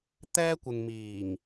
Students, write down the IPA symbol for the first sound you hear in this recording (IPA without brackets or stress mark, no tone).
t̪